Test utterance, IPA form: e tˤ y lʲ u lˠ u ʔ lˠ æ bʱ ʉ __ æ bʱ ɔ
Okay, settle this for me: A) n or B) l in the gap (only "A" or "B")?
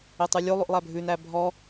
A